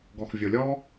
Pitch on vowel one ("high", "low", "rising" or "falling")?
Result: low